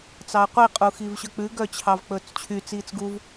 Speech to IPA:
t͡s ɑ ɐ̯ qʷ i qʼ u x i v ɕ œ k͡p ʉ ɡ œ t͡ɕʰ ɑ v k͡p ɵː t͡s t͡ɕʰ y t͡s iː t͡s ɡ u v

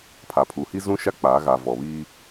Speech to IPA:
pʰ a˨ pʰ u˨ h i˦ z ũ˦ ʃ a˦ k͡p aː˨˦ ɣ a˨ v ɔ˨ β iː˦

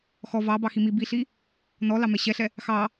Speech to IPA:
x ɔ v ɑ b ɑ x i m i b i ɬ i | n ɔ l ɑ m ɛ ɕ ɛ ɬ ɛ | x ɑ

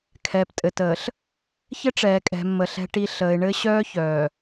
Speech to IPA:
kʰ ɛ˨ p tʼ ɘ˨ t əː˨ ɬ | ç ɘ˦ ʈ͡ʂ ɛː˨ kʼ ɛ̤˨ mː ə˨ ɬ ɛ̤˨ ʈ i˨ ɬ əː˨ ɪ̯ ɳ ɘ˦ ɕ œː˦ ç œː˨

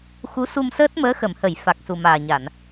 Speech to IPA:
x u˧˥ s u˧ m s əː˦˥ t̚ m əː˧˥ x ə˨˩˨ m h ə˨˩˨ j f a˨˩ k̚ s u˨˩ m aː˨˩ ɲ a˨˩˨ n

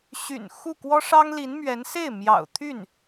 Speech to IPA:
ɕ y̰˨˩ n x u˥˩ k w ɔ˥ ʂ ɑ˥ ŋ l i˧˥ n m ɥ ɛ˧˥ n s e˥˩ ɪ̯ m j ɑ̰˨˩ ʊ̯ t̪ʰ y˥˩ n

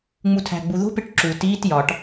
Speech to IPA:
ŋ͡m u tʰ æ̤ ɡ͡b u ð o̤ p e ʈ ǁ u t iː t j ɒ ʈ

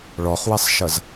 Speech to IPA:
ɭ ɔ χ w ɛ sˤ ʃ ʌ z

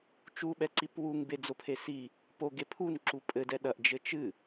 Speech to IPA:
t͡ʃ u ɓ ɛ ǀ i p w u ŋ b e d͡z o pʰ e s i | p o ɡ e pʰ u n ǁ u pʼ ɘ d ɛ ɗ ɐ ʔ d͡ʒ ɘ t͡ʃ ɨ

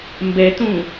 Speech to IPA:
m b ɛ t ũ

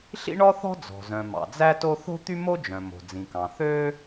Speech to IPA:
ɬ ḭ˥ ɳ ɔ˥ θ ɔ̤˥ d͡z ɔ̤˩ z œ̃˩ m ɑ̰˩ d͡z æ˥ t o˥ θ o̤˥ t̪ y˥ m o˥ d͡ʒ œ̃˩ m o̤˩ d͡z ĩ˩ k ɑ̃˩ θ ø˥

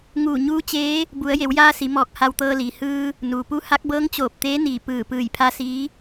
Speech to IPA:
ŋ uː˧˩ ɲ uː˧˥ t͡ɕ eː˧˥ | b u˩˧ ə̯ j e˩˧ w j aː˧ s i˩˧ m ɔː˧˩ k̚ h a˧ w t̪ ɤː˧ l iː˩ h ɯː˧ | n uː˩ p u˧˥ h a˧˥ k̚ b ɤː˧˥ ŋ t͡ɕ oː˧˩ p̚ t̪ eː˧˥ n iː˧˩ p ɯː˧˩ p ɯː˧˩ j pʰ a˧˥ s iː˧˥

